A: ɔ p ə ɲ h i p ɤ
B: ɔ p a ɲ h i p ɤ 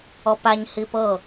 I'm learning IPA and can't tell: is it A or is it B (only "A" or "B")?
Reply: B